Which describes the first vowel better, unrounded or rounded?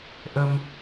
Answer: unrounded